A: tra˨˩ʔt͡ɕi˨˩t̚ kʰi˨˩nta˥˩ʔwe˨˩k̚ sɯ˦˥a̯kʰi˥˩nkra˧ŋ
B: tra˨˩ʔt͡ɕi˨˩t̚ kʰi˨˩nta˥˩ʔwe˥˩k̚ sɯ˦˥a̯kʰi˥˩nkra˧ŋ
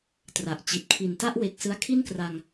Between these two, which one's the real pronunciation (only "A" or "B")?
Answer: A